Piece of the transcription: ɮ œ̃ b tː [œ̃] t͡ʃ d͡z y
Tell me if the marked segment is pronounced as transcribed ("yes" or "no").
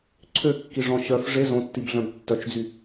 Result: no